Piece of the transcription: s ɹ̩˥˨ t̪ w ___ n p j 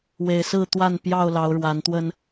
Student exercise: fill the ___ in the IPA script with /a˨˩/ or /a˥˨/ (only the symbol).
a˥˨